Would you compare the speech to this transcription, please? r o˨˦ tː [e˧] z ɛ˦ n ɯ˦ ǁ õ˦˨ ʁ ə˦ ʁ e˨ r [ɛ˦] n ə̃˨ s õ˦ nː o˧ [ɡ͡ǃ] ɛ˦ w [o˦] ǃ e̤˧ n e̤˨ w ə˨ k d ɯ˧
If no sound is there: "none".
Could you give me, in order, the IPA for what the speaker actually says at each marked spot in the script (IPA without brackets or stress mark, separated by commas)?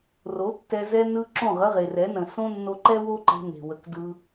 ɛ˧, ɛ˨˦, ǃ, o˦